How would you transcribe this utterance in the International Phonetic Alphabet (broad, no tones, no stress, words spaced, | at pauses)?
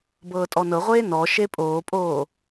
bɤːtʼɔnɤʁʷeː nɔʃe pʼoːpʼoː